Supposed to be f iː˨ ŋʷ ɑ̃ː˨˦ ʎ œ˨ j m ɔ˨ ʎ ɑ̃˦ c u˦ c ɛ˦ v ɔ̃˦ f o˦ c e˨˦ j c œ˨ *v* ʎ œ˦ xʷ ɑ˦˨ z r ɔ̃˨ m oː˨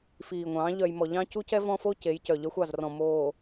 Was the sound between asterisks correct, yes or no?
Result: no